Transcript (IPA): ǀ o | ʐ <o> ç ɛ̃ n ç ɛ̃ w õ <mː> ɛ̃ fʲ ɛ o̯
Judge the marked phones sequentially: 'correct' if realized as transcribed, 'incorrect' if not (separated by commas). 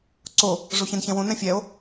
correct, incorrect